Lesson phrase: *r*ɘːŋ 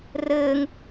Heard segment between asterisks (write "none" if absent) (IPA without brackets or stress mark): r